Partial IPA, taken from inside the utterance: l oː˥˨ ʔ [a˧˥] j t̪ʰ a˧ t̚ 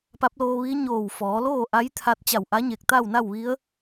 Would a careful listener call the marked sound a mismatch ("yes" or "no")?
no